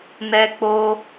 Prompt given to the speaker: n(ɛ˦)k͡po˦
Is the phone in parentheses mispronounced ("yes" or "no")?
no